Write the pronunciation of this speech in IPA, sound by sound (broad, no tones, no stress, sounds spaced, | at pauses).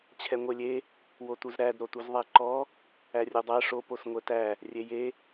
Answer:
t͡ɕʰ ɛ ŋʷ e lʲ e | w o t u z ɾ æ d ɾ o t u z ðˤ æ ǃ ɔ | æ rʲ u dˤ æ ʂ o p o s ŋʷ ɛ t æ | rʲ e j e